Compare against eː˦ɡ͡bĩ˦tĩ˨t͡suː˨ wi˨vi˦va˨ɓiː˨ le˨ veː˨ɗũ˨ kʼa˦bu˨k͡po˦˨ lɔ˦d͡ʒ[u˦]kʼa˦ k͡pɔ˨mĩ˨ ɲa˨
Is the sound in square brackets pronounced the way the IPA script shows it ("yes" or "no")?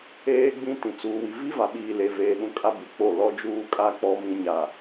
no